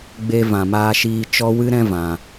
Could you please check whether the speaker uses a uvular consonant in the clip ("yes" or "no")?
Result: no